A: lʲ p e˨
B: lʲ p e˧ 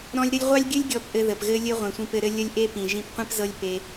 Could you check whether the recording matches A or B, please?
B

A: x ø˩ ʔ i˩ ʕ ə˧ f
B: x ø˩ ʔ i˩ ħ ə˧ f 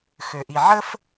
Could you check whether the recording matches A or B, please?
A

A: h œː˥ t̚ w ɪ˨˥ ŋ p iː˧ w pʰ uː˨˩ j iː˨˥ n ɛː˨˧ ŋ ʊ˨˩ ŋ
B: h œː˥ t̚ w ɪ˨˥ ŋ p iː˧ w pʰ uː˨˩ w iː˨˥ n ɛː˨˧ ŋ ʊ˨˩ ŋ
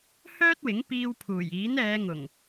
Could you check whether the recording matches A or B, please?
A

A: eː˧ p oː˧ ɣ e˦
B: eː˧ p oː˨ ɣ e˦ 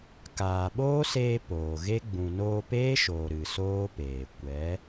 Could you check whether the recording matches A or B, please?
B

